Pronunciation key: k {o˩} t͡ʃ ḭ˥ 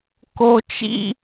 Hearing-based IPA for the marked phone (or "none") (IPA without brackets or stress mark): o˥